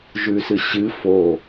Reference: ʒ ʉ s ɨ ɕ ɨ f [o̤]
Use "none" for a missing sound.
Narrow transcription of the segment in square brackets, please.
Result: o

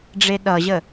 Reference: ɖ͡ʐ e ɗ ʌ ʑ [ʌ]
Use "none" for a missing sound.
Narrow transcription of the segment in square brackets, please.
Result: ə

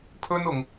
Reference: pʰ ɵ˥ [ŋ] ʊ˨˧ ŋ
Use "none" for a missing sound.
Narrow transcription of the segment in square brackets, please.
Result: n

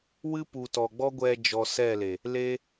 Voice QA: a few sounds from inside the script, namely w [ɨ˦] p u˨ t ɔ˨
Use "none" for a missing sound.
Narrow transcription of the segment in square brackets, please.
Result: ɨ˦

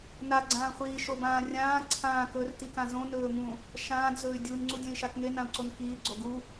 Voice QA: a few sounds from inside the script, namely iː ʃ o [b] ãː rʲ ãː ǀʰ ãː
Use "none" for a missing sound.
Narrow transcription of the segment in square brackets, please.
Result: b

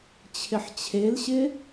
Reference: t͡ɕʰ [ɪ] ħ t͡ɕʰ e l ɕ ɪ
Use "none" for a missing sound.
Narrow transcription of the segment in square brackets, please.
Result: ɪ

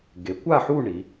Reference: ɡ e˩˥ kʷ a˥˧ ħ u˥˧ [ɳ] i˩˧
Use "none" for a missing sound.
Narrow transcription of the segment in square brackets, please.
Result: ɳ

